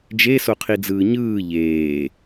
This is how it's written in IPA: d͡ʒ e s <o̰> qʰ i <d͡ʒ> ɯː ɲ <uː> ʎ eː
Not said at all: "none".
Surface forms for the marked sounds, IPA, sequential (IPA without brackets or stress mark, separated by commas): o, d͡z, ɯː